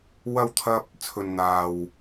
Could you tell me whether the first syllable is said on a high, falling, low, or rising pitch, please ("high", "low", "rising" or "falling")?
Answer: high